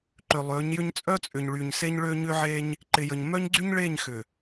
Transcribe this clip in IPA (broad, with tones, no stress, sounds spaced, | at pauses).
ǃ ʏ˨ lˠ ø˨˦ ɲ j ʏ˦ ɲ t͡sʼ œ˦ t͡sʼ ʏ˨ ɲ ɭ y˨ ɲ s e˦ ɲ ɭ ø˦ ɲ ʏ˦ ʕ e˦ ɲ | ǃ ɪ˨ j ə˨ ɲ m œ˦ ɲ ɡ͡ǀ y˦ ɲ ɭ e˦˨ ɲ x ʏ˨